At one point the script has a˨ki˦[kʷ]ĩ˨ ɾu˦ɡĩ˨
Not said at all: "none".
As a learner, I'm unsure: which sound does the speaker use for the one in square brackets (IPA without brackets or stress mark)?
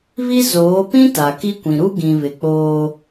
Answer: kʷ